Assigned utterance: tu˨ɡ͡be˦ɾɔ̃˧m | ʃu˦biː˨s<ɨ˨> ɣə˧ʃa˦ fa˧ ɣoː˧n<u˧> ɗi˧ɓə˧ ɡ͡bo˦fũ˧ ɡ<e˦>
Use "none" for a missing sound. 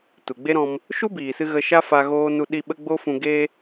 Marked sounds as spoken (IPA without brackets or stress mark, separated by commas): ɨ˧, u˧, e˦